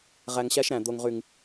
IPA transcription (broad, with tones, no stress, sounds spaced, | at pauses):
ʁ æ˧ ŋ ɕ æ˦ ʃ ɾ æ̃˨ d̪ o˨ ŋ ʁ y˨ ŋ